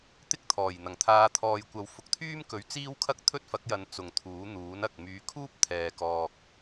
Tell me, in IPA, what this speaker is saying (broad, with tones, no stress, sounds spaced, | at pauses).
t̪ ɪ˥ k̚ t̪ʰ ɔː˨˩ j n̪ ɐ˨˩ ŋ t̪ʰ aː˨˧ t̪ʰ ɔː˨ j kʷ ɐ˨˧ w f ʊ˨˥ k̚ t̪ʰ yː˥ m k ɵ˨˥ ɥ t͡s iː˥ w kʰ ɐ˥ k̚ t̪ʰ ɵ˥ t̚ f ɐ˨˥ k̚ j ɐ˨˧ n t͡s ʊ˨ ŋ t̪ʰ uː˨˥ n̪ uː˨˥ n ɐ˨ k̚ m yː˨˧ kʰ uː˥ p̚ t̪ʰ ɛː˧ k ɔː˧ k̚